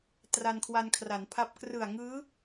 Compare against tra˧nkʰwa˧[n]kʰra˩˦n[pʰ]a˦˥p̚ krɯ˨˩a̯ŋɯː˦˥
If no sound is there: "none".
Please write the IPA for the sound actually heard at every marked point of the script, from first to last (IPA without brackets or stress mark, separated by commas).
n, pʰ